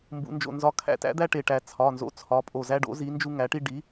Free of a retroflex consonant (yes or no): no